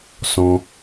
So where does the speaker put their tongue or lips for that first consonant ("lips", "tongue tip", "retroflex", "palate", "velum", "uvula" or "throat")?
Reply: tongue tip